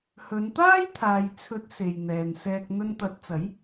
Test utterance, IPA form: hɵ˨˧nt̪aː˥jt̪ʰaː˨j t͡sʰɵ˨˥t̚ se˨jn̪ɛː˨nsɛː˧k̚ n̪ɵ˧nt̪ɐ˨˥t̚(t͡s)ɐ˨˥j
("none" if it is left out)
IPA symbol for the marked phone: t͡s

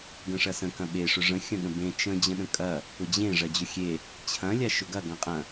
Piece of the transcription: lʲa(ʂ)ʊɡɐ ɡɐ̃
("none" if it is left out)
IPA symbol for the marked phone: ʃ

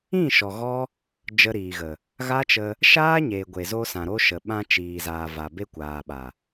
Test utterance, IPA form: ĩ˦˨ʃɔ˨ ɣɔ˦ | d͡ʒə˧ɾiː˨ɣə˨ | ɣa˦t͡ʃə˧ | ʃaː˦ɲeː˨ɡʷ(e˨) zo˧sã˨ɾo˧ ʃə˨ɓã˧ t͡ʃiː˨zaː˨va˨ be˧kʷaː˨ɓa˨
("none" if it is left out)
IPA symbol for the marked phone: e˨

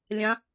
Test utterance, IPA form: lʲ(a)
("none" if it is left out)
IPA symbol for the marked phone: ã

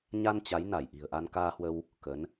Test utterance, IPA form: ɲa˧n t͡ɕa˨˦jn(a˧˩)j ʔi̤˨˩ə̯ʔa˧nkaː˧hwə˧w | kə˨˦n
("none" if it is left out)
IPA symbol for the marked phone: a˧˩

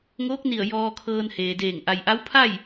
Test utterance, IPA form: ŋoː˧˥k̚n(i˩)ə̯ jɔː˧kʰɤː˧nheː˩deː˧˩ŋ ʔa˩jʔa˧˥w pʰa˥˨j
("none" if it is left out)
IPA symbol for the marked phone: i˧˩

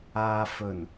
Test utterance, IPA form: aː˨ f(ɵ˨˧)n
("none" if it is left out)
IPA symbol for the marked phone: ɵ˨˩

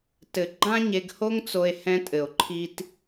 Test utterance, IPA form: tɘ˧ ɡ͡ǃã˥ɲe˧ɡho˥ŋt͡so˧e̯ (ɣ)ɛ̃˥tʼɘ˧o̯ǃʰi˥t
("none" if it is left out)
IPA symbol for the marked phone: h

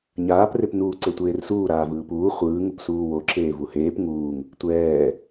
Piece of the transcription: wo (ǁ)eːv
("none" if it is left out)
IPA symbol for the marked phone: ǁ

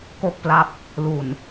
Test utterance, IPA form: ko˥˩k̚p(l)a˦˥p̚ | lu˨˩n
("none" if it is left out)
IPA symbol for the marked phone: l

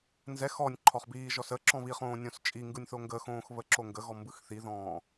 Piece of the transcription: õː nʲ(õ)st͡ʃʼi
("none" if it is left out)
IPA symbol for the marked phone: õ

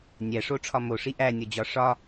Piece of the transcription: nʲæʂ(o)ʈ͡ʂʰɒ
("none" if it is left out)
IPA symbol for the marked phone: o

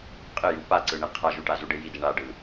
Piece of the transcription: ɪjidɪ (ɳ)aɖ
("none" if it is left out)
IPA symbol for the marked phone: ɳ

